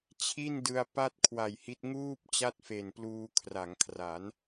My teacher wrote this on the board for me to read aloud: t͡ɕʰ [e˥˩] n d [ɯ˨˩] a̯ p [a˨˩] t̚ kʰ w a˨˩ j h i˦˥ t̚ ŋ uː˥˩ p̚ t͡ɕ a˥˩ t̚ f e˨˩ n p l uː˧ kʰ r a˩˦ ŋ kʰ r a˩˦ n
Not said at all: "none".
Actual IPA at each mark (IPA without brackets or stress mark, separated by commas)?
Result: i˥˩, ɯ˧, a˥˩